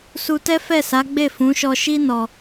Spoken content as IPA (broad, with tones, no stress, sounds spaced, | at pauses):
s u˧ t ɛ˦ f ɛ˦˨ s a˨˦ ɡ͡b e˦˨ f ũ˨˦ ʃ ɔ˧ ʃ i˦ n ɔ˧